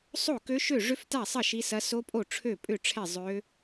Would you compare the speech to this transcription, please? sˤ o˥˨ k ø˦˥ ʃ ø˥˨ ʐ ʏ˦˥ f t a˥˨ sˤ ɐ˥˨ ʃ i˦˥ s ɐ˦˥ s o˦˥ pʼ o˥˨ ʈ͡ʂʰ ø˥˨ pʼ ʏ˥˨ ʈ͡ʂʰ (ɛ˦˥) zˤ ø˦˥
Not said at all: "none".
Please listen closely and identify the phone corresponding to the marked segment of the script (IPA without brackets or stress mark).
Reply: ɛ˥˨